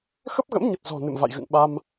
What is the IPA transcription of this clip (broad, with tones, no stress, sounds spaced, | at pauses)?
x ə˦˥ p̚ ɣ ə̰˧˥ m ɲ ə˨˩ t̚ z ɔ̤˨˩ n ɨ̰˧˨ m v a̰˧˨ j ɣ ɨ̰˧˨ ŋ ɓ a˧ m